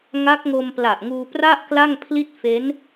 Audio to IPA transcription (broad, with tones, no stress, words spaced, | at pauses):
ŋa˦˥k̚ ŋo˧mpla˨˩ʔ ŋuː˧pra˥˩ʔ kla˥˩ŋpʰli˥˩t̚ fe˦˥n